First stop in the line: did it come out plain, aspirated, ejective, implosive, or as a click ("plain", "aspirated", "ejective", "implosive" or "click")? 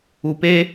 plain